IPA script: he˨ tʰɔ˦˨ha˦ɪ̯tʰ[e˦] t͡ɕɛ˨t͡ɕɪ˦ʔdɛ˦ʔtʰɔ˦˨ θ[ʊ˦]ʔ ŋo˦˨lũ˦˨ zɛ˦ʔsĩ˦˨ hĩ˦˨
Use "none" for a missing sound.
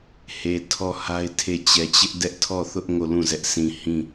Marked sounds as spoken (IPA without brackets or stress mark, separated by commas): e˦˨, ʊ˦